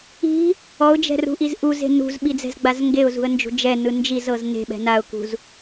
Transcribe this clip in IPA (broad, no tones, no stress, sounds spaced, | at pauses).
i̤ | ɔ ʊ̯ d͡ʒ ɛ̤ r ṳ ʔ i z ʔ u z e̤ n ṳ z ɓ i d͡z ɛ̤ z ɡ͡b a z ŋ ɡ e ʊ̯ z ṳ ə̯ n d͡ʒ ṳ d͡ʒ ɛ n ɯ n d͡ʒ i z ɤ z n e̤ ɓ ɛ̤ n a ʊ̯ k ṳ z